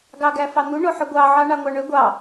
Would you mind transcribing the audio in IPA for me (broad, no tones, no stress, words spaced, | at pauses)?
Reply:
ɡɑɡæfɑn̪u ɳoħøɡʷɑ ʕɑɳɑŋʷɑɳø ɡʷɑ